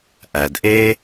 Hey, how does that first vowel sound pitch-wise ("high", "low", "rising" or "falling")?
low